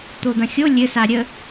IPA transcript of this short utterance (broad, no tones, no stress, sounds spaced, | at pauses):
t̪ o d̪ ɐ̃ xʲ o lʲ ɘ s a ɾʲ ə